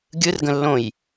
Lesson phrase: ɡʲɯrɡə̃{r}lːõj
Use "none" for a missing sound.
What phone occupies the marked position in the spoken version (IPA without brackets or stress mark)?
none